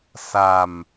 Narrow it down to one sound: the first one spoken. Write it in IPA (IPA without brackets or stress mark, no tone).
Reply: s